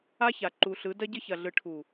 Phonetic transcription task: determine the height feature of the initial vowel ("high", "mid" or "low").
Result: low